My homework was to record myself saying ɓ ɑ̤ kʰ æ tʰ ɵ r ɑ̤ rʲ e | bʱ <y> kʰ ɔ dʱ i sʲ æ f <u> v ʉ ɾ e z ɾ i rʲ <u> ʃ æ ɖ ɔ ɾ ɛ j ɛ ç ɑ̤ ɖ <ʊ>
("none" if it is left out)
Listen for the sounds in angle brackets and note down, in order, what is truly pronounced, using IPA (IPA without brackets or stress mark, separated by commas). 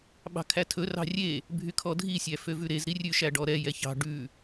y, ø, ʉ, ʉ